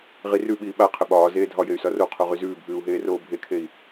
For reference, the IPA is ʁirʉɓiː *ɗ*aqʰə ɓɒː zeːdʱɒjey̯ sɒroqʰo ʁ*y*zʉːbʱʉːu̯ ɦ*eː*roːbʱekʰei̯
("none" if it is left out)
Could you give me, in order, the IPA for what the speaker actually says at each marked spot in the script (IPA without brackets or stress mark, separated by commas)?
ɓ, y, eː